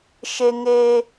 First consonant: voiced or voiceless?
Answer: voiceless